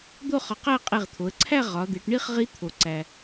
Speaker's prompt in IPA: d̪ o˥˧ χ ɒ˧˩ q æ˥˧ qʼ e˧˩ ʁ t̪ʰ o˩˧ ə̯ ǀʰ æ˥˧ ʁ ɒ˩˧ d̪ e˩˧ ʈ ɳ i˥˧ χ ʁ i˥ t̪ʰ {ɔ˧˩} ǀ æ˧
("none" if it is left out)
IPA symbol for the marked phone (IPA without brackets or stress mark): o˧˩